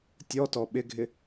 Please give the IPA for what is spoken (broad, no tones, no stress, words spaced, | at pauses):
tʲɔtɔ ɓɪɡʱɪ